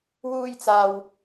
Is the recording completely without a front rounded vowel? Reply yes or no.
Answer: yes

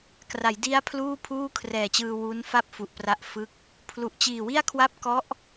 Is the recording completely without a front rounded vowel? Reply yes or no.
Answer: yes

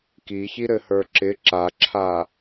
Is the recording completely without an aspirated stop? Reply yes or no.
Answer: no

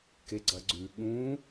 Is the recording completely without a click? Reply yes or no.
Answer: no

